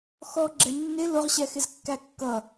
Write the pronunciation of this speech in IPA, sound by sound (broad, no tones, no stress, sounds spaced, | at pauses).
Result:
x ɔ ɡ͡ǁ ɛ nː ɪ l ʊ ʁ ɕ ɛ x ɪ z kː æ kː ʌ